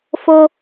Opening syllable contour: high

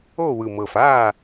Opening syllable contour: falling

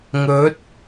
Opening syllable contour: rising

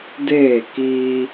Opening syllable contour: falling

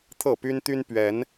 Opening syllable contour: falling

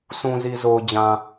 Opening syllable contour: low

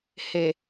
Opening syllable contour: low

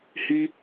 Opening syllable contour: high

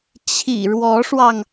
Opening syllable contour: low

